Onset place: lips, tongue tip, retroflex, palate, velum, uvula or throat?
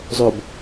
tongue tip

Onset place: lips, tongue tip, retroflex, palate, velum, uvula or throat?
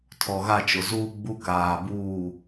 tongue tip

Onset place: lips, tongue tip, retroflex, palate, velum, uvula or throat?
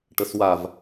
retroflex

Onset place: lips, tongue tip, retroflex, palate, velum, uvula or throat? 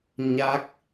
palate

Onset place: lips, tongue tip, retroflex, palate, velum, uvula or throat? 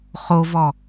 uvula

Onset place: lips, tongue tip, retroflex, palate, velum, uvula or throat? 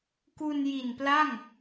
velum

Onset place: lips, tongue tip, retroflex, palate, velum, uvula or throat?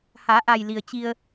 throat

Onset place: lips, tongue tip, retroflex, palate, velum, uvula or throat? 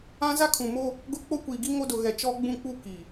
tongue tip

